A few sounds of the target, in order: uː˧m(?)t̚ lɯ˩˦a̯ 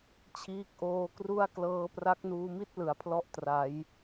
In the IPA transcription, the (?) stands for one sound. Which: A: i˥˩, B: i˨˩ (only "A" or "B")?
A